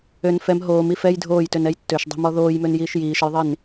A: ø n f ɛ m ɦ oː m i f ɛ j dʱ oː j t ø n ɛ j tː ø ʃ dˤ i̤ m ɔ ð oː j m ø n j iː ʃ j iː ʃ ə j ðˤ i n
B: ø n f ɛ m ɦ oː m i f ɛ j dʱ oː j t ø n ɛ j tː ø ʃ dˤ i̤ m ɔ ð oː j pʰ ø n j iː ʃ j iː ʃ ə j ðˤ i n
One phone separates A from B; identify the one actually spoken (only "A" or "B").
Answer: A